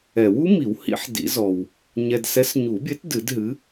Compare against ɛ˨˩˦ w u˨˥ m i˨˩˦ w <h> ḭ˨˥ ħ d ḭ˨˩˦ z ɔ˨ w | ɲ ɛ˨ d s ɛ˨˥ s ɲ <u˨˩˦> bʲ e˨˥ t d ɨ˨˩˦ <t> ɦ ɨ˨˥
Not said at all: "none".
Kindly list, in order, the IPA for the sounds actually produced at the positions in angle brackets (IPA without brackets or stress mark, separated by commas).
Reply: h, u˨˩˦, d